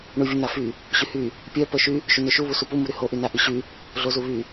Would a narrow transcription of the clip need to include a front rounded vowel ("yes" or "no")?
yes